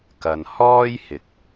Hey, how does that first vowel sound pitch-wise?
low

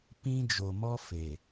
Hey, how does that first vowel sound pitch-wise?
high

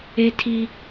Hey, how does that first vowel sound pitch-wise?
high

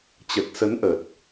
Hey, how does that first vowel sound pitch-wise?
low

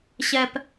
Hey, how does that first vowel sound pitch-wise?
low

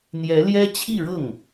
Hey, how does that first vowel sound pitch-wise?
rising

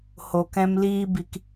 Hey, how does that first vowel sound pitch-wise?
low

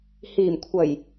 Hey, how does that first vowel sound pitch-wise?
low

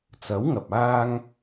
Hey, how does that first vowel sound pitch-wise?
rising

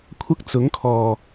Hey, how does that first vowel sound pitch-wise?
high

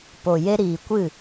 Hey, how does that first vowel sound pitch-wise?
low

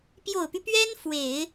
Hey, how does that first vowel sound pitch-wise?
low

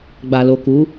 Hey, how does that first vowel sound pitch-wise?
low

